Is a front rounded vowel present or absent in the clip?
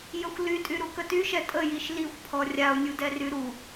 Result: present